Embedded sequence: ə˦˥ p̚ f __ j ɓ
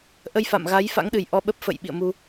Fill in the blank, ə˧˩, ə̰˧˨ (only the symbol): ə̰˧˨